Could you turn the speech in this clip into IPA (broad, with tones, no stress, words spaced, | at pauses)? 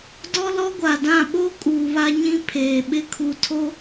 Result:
dɔ˦lɔ˦ɡʷa˨dã˦˨ ɓo˦ kʼuː˨βa˦ɲĩ˦ pʰeː˨ɓɪ˦ kʰu˨tʰo˦